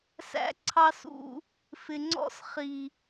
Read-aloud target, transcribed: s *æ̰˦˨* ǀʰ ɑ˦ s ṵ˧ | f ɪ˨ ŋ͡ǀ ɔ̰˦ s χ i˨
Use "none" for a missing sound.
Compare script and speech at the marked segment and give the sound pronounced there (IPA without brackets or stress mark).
æ̰˦